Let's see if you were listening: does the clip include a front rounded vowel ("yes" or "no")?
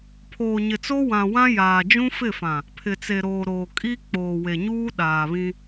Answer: no